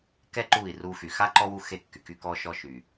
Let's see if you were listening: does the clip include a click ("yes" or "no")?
yes